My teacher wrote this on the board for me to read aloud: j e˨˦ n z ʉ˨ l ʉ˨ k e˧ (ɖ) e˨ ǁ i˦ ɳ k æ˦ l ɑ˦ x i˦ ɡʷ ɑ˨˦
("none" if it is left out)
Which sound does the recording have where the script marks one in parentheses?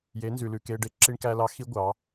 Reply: ɖ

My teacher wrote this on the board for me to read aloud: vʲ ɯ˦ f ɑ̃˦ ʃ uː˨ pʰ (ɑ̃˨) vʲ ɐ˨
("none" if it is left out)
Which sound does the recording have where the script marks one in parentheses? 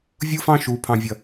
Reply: ɑ̃˨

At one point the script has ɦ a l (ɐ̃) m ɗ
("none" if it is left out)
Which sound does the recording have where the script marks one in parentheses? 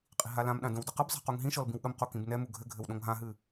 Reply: ã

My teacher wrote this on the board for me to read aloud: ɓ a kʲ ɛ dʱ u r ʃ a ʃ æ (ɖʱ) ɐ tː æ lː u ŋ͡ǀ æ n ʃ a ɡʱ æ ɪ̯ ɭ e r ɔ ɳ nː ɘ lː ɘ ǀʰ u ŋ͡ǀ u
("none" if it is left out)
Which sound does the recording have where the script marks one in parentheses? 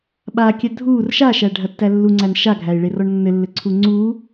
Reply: ɖʱ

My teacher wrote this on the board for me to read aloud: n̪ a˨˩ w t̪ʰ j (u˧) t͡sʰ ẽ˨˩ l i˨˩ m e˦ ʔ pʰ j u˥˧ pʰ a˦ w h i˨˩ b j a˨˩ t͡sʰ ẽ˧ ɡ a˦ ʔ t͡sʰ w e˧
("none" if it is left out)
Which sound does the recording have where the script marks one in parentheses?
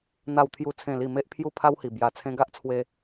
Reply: u˨˩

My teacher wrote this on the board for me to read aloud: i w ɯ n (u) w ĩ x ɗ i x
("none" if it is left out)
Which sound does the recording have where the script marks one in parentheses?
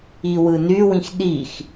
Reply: y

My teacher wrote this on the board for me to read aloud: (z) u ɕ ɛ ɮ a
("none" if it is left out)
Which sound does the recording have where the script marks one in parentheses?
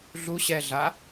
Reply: ɮ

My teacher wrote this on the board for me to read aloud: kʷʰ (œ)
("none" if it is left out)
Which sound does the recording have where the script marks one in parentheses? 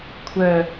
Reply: œ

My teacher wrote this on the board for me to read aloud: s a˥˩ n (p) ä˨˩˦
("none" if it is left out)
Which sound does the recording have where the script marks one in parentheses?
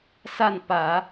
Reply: p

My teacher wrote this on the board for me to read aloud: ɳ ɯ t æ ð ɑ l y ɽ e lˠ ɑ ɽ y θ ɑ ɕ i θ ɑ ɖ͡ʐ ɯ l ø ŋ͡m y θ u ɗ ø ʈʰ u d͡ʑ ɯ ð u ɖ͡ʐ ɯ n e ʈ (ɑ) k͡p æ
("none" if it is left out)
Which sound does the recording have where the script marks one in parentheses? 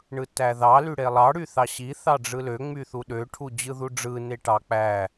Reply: ɑ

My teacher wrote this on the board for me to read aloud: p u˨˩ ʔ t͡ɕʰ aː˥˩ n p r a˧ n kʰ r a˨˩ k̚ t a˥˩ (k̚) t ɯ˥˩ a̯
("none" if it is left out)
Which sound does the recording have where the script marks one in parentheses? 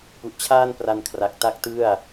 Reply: k̚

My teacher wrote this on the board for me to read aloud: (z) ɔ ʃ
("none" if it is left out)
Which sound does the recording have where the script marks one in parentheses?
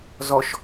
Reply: z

